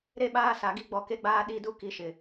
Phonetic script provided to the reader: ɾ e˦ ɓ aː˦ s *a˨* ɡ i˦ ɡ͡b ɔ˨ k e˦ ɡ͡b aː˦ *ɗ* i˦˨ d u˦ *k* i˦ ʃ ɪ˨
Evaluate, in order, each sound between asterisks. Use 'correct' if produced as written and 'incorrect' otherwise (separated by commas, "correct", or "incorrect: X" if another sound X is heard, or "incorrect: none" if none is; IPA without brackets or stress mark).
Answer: correct, correct, correct